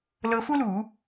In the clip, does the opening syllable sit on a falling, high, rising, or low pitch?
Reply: rising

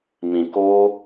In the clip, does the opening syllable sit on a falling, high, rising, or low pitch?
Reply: low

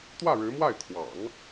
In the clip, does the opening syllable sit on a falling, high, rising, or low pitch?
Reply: falling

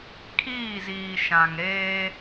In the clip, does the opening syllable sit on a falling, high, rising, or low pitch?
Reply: falling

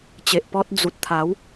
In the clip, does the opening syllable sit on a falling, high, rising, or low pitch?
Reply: low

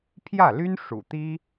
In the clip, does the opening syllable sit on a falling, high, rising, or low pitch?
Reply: falling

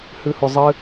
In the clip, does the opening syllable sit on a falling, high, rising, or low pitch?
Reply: high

